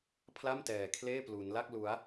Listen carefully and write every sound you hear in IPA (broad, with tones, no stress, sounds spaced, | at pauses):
pʰ l a˥˩ m t ɛː˧ kʰ l eː˥˩ p l u˦˥ n l a˥˩ k̚ l u˦˥ a̯